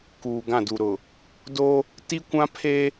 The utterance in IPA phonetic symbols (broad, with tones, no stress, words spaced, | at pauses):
kuː˨ɡã˦˨du˨ ɾʊ˨ | do˦ | ti˦kʷã˦pʰeː˦